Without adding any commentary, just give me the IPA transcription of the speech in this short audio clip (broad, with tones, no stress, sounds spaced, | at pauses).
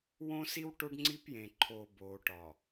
w õː˦ s i˦ w ʈ o˦ ɖ ŋ͡ǀ i˦ p j ẽ˨ ǃʰ oː˨ b oː˨ ʈ ɒ˨